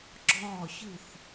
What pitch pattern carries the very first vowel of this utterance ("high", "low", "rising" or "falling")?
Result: falling